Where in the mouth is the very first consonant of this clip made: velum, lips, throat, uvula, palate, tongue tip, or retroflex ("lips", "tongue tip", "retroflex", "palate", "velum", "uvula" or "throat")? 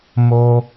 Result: lips